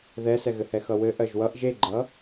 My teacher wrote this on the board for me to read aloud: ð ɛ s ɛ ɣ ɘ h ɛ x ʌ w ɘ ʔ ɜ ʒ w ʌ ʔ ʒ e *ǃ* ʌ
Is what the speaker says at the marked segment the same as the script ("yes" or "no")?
no